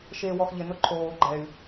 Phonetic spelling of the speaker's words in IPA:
ʃeːwɔxʎɪnʊ ǃʰoː ɡ͡ǃɛy̯

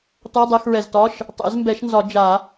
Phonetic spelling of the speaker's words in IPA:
tɔ˧˥˧dˤɛ˧˥˧xɹɛ˨˩ztɒ˧˥˧ʃ | tˤɛ̰˨˩˦zmbɛ˨˩˦ʃnzɒ˨˩˦ d͡ʒa˨˩˦

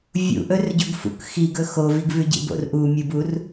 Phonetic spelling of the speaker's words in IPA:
vʲṵʔɵr ɟɵɡfṵk xiɡɵ xoviɡvʉɟḭ bo̰rʔu mʲɨbur

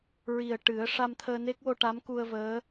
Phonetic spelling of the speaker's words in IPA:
ɹi˨˩ə̯ ʈɨ˨˩˦ə̯ ʂa˧mt̪ʰəː˧ne˦˥k̚wo˧ ʈa˧˥mku˧ə̯vəː˧˥

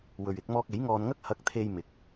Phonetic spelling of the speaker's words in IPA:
wɵ˨ɥɪ˧k̚mɔː˧k̚ e˨˥jŋɔː˧nŋɐ˥k̚ hɐ˨˥k̚t̪ʰe˨j mɪ˨˥k̚

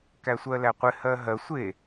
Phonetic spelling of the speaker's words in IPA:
kæsʷɜlæqʷɪ hɜɦɜ sʷe

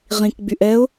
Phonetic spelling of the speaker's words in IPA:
ʁĩkɡ͡byʔ ɛʊ̯

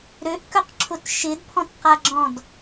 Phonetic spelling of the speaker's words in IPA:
ɾøʔkœqǁʰʊt ʃɪdpʰɔ̃tqaɡ͡ǁɔ̃d

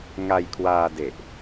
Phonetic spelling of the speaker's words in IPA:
ŋa˧jkʰwaː˧de˨˩ʔ

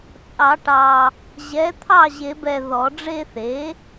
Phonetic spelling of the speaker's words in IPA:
t͡sʼɑ˨˩˦ʈɑ˨ | ʑɛ˩˥t̪ʰɑ˥˩ʑe˨˩˦bɛ˨ ðɔ˨˩˦ɖ͡ʐe˥˧ θe˩˥

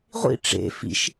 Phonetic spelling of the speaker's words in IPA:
ʁʷḭ ʈ͡ʂḛ fḭʃ

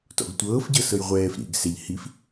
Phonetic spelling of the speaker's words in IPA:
tɔ̰ɡtʷɤːfɟɤ sɤjʁʷɛːf ɾḭɡ sɛʎ hif

